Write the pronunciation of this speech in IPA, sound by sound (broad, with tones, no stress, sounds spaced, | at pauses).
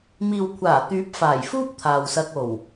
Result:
m iː˨ w kʷʰ aː˨˩ t̪ yː˨˥ p̚ f aː˨˩ j f uː˥ p̚ t̪ʰ aː˨ w s ɐ˧ k̚ o˨˩ w